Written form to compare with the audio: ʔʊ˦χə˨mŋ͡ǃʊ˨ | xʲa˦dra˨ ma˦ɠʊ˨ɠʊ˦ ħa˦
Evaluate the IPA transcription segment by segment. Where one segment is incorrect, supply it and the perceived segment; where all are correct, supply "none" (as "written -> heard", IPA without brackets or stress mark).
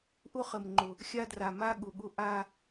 ħ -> ʔ